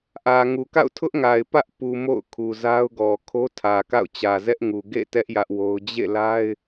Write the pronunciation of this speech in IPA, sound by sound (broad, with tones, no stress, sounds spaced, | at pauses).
ʔ ä˨ ŋ u˨ k a̰˦˨ ʊ̯ tʰ ʊ˦ ʔ ŋ a˨ ɪ̯ p ä˦ ʔ p u˨ m o̰˦˨ ʊ̯ kʰ u˨ z a˦ ʊ̯ ɡ ɔ˨ kʰ o˦ tʰ ä˨ k a̰˦˨ ʊ̯ t͡ɕ ä˨ z ɛ˦ ʔ ŋ u˨ ɡ ḛ˦˨ t ɛ˦ ʔ j ä˦ ʔ w o˦ ʊ̯ d͡ʑ ḛ˦˨ l a˦ ɪ̯